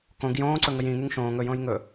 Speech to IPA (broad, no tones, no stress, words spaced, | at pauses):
kõɡ jõːǀɵŋəj ĩŋyŋ ʃõːŋ ɵjõːj ŋɵ